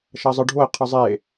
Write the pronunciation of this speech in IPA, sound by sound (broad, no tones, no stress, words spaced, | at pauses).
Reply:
ʃɐzˤɨɖʱoi̯ qʰɨzˤe